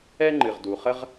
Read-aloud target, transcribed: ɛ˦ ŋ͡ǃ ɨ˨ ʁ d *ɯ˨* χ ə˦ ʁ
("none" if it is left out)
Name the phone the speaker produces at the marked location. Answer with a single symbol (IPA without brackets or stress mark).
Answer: u˨